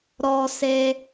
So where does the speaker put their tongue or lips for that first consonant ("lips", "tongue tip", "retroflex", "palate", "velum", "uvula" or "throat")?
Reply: tongue tip